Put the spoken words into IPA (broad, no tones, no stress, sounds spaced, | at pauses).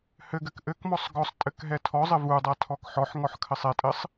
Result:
h ɘ ɡ ɘ k ʔ ɘ k m ɔ sˤ ɡ ɔ sˤ tʼ ɘ k ɦ ɛ tʰ ɔ zˤ ɘ v u dˤ a tʰ ɔ k ħ ɔ ħ ŋ ɔ ħ kʰ ɘ sˤ ɛ tʼ ɘ sˤ